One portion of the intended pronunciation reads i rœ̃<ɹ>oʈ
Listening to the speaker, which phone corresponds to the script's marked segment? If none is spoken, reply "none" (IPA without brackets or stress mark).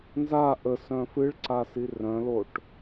l